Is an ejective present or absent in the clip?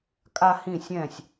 present